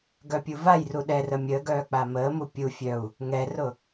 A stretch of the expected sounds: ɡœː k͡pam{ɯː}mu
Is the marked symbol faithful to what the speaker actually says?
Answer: no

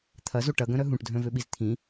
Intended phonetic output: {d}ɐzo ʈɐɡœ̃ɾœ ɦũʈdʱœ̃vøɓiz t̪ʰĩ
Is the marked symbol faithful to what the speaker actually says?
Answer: no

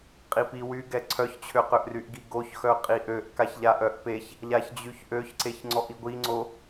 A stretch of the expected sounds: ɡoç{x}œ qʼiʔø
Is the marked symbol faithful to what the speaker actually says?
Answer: yes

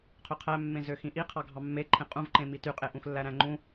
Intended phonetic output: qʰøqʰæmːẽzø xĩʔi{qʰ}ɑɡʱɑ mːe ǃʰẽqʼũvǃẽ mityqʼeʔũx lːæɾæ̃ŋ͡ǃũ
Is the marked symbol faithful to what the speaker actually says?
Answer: yes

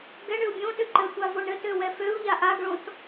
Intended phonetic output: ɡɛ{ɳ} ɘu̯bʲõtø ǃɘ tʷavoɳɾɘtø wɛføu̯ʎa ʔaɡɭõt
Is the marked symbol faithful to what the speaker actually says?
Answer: yes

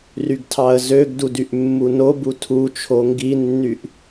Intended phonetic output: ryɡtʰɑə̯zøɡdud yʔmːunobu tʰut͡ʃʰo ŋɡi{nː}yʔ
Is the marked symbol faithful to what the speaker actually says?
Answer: yes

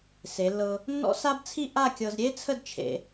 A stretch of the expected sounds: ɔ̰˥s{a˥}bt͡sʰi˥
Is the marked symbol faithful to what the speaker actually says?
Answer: yes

